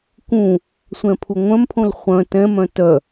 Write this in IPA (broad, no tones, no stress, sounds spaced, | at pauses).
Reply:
k ũ | sʷ ɛ̃ pʰ u ŋʷ œ̃ m pʰ õ l χʷ œ̃ t ɛ̃ m œ̃ t œ